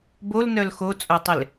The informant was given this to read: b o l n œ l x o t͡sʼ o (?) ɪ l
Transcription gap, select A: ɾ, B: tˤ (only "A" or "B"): B